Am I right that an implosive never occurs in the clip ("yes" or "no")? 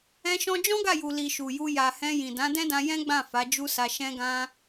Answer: yes